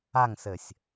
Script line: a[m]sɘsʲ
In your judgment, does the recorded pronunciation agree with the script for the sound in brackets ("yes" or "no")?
no